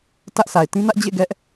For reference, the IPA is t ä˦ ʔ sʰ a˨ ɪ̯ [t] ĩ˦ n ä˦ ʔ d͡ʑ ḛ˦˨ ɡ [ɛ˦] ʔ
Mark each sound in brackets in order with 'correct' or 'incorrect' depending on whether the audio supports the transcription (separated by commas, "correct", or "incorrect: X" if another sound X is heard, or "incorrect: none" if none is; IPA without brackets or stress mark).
correct, correct